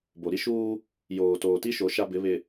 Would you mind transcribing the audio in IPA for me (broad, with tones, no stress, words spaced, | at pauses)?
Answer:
bo˨ɾi˦ʃuː˦ | joː˨toː˨ ti˦ʃo˨˦ ʃa˦bɪ˨˦ βɪ˨